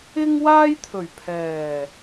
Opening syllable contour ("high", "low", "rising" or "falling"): high